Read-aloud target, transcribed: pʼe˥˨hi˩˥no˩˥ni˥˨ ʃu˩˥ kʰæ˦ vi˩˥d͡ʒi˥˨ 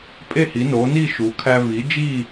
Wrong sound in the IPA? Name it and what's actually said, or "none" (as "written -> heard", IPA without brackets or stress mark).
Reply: none